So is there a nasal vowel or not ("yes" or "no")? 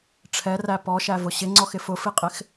no